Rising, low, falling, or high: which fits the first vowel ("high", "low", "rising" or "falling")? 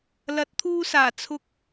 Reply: rising